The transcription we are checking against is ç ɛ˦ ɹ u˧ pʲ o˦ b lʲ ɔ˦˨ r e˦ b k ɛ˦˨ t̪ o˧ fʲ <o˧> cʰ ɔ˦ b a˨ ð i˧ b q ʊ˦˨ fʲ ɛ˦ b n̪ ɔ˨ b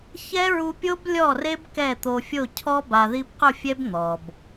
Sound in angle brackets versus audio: incorrect: o˦˨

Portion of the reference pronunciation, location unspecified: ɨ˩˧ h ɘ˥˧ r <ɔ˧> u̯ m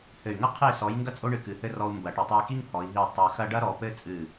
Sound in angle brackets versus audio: correct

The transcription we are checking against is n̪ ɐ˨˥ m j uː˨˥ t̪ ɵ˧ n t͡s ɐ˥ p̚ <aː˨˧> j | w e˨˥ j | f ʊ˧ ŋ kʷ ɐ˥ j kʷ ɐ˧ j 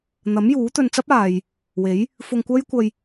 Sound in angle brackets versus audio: incorrect: aː˨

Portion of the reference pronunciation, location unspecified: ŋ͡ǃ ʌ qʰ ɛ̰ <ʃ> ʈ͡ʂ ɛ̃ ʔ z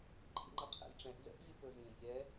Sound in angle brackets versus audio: incorrect: z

